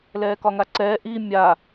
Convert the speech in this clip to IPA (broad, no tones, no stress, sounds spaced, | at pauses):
l ɛː k ɒ ŋ a ǀ ɛː ʔ i mʲ a